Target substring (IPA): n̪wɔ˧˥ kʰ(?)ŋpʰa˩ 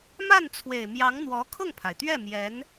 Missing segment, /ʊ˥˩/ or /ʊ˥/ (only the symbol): ʊ˥˩